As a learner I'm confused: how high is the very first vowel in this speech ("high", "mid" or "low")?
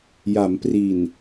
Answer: low